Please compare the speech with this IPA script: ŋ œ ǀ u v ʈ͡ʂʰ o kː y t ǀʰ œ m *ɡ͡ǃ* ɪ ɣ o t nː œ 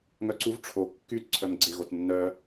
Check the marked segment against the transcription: incorrect: ɡ͡ǀ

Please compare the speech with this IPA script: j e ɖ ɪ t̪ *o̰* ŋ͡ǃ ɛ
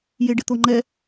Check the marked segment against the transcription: incorrect: o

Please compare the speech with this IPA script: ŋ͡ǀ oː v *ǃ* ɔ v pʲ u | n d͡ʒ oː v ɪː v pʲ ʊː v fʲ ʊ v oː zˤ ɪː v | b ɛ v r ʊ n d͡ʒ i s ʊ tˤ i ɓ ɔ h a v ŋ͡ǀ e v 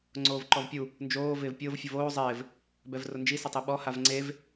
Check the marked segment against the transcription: correct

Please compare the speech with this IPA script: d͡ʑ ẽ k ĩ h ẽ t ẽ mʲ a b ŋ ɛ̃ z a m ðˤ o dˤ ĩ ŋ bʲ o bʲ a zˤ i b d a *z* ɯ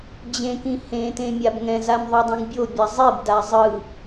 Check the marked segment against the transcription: incorrect: zˤ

